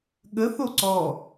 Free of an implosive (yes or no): no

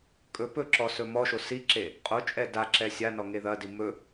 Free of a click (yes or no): no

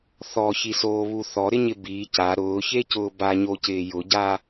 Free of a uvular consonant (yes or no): yes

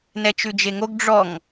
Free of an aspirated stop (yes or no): yes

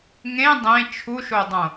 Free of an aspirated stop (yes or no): no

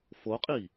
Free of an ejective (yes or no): no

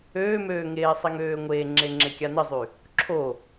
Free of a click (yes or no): no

